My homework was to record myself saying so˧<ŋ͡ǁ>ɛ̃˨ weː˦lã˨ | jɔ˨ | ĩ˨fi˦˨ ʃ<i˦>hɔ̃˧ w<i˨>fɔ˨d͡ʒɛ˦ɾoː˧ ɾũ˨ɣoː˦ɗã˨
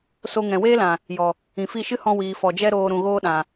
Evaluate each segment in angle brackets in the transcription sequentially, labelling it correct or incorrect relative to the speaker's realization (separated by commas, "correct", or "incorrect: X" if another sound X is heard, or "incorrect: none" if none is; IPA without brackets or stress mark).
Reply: incorrect: ŋ, incorrect: ɨ˦, incorrect: iː˨